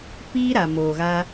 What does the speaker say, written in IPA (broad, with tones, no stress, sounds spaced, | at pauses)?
p iː˦ ɾ a˨ m oː˨ ɣ a˧